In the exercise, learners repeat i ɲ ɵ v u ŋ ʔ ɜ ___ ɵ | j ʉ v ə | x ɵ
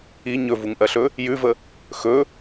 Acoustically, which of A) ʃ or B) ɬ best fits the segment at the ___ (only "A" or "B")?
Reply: B